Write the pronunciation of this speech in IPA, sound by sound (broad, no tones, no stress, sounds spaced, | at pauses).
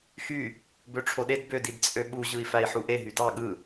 x y | b ø ʈ͡ʂʰ o ɗ e d b ø d i d t͡sʼ ø ɓ u ʑ ɯ i̯ f æ i̯ ħ u ʔ e ɦ y d ɑ ɠ ɯ